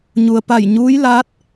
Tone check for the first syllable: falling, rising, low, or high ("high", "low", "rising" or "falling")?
low